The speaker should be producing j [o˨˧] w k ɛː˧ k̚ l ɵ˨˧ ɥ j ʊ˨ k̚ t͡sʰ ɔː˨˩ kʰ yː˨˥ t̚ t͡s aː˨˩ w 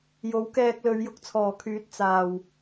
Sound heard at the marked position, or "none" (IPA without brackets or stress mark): o˨˥